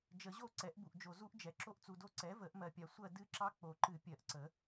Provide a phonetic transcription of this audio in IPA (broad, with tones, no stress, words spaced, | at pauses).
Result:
d͡ʒə˨˩˦ʑo˦˨ ǀɛ˩˥ʔbu˨ʔd͡ʒo˨ zu˦˥ʔd͡ʒɛ˩˥ ǁo˦˥ʔt͡su˨do˦˥ ǀɛ˩˥və˨˩˦ʔmɜ˨pʲa˨ sʷɜ˦˨ dɨ˦˥ǁɑ˦˥ k͡po˨˩˦ǃɨ˨˩˦pʲɜ˨˩˦ʔǀə˨˩˦